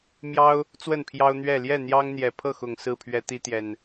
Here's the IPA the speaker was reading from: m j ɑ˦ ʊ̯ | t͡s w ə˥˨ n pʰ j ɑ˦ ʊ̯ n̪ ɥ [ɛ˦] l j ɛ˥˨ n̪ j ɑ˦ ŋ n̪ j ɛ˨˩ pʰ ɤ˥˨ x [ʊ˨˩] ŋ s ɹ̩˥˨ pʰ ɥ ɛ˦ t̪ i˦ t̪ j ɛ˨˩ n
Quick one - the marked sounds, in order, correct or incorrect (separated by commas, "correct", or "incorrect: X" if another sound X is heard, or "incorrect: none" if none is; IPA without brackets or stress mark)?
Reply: incorrect: ɛ˥˨, correct